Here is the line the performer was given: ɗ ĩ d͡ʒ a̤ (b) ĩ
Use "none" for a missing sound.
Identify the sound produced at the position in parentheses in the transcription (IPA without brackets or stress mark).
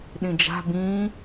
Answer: b